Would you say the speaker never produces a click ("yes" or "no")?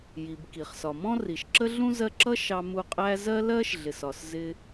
no